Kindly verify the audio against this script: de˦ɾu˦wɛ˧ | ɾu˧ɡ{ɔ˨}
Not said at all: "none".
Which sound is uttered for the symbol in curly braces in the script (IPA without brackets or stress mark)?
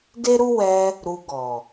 ɔ˨